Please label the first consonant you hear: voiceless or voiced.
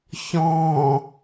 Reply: voiceless